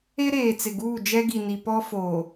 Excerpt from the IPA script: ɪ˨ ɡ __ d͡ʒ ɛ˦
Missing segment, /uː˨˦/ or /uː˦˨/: uː˦˨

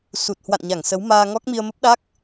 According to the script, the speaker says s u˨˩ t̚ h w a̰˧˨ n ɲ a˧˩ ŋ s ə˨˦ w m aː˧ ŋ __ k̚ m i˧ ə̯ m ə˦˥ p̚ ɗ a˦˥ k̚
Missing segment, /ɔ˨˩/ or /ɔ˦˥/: ɔ˦˥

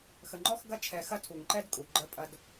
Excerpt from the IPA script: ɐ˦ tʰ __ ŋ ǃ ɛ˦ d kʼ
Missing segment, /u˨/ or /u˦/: u˨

